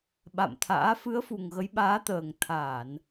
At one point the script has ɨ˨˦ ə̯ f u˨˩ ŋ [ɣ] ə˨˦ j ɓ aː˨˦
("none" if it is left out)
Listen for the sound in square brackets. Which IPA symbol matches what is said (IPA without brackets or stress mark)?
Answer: ɣ